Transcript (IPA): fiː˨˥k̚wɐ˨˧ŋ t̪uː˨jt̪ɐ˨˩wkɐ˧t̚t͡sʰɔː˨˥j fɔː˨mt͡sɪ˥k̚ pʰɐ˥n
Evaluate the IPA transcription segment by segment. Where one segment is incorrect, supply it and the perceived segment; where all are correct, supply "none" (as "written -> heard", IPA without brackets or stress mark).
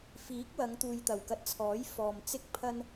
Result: none